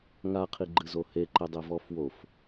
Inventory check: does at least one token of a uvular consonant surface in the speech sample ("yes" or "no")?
yes